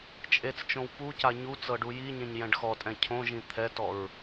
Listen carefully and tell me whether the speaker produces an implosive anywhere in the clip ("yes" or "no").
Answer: no